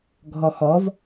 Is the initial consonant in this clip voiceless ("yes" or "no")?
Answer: no